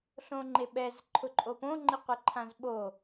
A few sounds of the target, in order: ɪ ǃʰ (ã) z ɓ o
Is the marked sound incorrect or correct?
correct